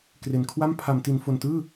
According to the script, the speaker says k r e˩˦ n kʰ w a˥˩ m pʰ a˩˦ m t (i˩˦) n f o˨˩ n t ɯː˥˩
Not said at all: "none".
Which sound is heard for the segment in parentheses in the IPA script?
i˩˦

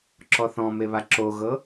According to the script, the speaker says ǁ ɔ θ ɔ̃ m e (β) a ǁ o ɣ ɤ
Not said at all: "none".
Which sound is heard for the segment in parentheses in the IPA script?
β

